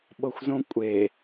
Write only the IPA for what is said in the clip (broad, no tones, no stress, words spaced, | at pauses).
ɓɤxʷzõkʷʼe